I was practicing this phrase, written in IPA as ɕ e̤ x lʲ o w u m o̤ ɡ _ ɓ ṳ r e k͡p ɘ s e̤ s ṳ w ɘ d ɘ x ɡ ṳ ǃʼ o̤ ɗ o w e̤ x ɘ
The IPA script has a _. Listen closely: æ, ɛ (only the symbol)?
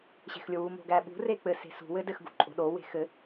æ